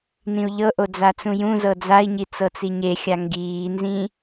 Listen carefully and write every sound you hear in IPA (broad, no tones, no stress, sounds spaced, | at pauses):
n ĩ u̯ ʎ ɤ ʔ o d͡z a t͡s ũ j ũ z ɤ d͡z a i̯ ɲ i t͡s ɤ t͡s i ɲ e xʲ a ŋ ɡ iː n z ĩ